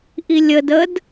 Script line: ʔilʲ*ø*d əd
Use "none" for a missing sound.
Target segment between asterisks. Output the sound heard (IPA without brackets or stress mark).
ə